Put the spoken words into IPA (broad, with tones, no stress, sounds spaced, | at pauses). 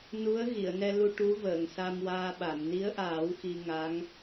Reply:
n u˧˥ ə̯ ɣ i˨˩˨ ə̯ n ɛ˧ l u˧ ʈ u˧˥ v əː˨˩˨ ŋ s a˧ m w aː˧ ɓ a˨˩˨ m n i˧˥ ə̯ ʔ aː˨˩˦ w x i˧ ŋ a˧˥ ŋ